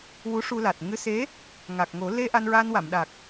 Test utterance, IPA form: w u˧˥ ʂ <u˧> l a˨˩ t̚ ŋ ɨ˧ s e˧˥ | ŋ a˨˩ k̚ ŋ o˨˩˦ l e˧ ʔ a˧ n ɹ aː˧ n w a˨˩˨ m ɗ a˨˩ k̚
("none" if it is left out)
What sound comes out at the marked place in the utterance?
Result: u˧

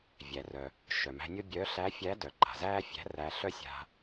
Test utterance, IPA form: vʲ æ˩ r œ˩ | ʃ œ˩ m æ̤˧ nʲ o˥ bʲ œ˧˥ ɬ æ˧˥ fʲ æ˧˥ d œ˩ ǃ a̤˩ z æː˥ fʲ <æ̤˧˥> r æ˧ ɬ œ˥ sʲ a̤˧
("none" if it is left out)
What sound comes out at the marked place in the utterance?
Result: æ̤˧˥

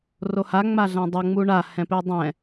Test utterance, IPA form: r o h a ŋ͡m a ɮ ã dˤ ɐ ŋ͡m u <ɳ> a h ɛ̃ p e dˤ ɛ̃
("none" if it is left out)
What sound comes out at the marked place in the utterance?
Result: ɳ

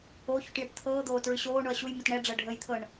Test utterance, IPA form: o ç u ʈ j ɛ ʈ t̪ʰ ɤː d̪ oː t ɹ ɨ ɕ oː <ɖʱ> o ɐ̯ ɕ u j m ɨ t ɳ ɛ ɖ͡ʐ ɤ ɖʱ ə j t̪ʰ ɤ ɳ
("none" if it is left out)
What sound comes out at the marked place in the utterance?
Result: ɳ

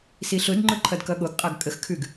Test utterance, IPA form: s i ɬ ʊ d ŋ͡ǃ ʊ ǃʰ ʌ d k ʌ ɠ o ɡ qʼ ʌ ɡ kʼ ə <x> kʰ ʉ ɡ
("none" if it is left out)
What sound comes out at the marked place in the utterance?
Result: x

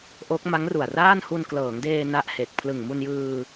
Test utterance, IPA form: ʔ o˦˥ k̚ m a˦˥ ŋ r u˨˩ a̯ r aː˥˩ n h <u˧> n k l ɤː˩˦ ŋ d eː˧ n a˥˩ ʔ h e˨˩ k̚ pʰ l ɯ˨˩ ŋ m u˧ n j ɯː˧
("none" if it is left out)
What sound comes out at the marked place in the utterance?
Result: u˧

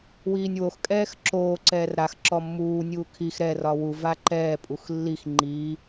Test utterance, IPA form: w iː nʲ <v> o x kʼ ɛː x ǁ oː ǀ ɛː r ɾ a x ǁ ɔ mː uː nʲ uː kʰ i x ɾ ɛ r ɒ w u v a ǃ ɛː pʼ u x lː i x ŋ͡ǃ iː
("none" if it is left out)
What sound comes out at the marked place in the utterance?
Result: w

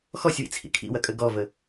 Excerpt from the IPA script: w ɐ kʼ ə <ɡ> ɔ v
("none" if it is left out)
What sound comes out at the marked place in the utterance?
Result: ɡ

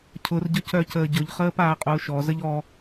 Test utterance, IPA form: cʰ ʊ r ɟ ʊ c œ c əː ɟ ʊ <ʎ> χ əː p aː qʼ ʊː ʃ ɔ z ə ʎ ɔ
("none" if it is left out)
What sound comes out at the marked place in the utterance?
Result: ʎ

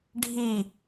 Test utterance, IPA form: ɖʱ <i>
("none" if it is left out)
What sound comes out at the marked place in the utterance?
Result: i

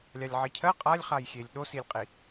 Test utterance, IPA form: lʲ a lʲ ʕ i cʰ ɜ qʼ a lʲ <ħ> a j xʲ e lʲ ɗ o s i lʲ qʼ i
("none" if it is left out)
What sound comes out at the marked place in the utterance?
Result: χ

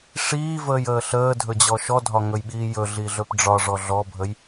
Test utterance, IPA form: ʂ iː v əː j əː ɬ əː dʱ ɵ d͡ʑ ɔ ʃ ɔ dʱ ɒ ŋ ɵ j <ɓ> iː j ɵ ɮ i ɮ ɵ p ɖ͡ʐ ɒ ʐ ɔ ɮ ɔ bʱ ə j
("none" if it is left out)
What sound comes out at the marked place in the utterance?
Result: ɓ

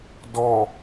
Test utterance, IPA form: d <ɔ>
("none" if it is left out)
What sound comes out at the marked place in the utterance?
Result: ɔ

